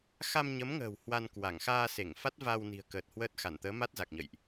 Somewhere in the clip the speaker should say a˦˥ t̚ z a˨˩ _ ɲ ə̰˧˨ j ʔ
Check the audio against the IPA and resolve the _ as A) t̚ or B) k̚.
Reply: B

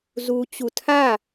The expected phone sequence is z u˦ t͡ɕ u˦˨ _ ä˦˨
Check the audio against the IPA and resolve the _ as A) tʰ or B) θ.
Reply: A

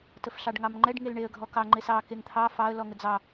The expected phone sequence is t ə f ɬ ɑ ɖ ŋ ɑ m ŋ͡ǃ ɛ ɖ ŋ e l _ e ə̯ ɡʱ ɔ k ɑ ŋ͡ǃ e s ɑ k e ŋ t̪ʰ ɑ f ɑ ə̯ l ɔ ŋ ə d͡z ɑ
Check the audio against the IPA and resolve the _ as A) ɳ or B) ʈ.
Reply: A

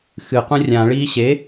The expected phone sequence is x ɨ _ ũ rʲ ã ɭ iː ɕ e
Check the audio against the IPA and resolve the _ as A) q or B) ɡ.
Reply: A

